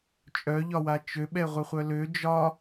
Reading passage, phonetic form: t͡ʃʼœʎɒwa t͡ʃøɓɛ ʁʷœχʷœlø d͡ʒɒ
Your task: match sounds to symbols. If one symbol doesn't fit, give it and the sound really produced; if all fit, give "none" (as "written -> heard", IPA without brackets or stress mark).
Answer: none